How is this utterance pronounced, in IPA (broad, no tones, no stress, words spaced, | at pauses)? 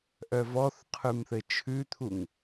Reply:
ʔœvɔθqʰʉmθɘ t͡ʃʰʉt̪ʰuŋ